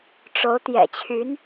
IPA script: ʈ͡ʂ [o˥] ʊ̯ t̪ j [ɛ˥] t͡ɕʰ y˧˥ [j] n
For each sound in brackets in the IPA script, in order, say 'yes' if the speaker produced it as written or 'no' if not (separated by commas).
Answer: no, no, no